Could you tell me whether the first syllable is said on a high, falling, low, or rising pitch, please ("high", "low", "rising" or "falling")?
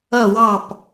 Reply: falling